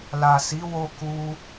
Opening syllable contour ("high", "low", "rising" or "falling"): low